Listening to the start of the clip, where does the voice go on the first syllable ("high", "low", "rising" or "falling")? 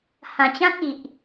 low